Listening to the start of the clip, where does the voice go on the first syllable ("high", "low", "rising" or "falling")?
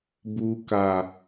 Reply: high